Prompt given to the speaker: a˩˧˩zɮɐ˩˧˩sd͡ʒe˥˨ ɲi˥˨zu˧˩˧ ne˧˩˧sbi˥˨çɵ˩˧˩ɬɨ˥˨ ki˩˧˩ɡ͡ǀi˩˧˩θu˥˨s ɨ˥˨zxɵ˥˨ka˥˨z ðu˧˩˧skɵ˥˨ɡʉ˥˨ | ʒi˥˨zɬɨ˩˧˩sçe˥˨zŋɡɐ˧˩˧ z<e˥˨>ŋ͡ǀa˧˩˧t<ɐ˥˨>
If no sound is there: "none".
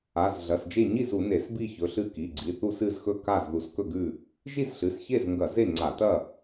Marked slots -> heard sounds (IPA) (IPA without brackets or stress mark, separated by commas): e˥˨, ɐ˥˨